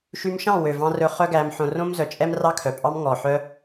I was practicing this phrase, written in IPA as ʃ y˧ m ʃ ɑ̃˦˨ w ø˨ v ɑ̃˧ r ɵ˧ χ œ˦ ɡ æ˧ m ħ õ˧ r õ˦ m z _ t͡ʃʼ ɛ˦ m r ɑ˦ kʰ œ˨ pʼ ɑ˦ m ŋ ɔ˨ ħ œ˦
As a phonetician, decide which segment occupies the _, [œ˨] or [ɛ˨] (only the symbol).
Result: œ˨